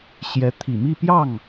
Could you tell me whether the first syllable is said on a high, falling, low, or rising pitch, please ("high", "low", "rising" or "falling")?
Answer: rising